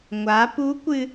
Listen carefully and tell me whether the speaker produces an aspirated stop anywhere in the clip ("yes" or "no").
no